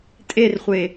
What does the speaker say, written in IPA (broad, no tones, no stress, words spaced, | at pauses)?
tʼerχʷe